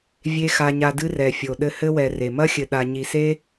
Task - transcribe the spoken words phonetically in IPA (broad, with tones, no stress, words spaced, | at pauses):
vʲe˥xa˦ɲa˦dɨ˥ rɛ˨fʲo˨ ɗɘ˦hɘ˥wɛ˨ re˩mɐ˥xʲɘ˨ ɗa˨ɲi˨se˥